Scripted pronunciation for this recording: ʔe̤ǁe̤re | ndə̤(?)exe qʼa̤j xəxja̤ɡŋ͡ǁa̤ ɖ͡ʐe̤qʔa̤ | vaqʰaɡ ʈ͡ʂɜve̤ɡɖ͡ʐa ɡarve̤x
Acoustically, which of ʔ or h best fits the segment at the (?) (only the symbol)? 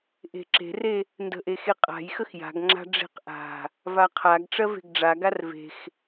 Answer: ʔ